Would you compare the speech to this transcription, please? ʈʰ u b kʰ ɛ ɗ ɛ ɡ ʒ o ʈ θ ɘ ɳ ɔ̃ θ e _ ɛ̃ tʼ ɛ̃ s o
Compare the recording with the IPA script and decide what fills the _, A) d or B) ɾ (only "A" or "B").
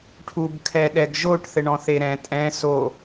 B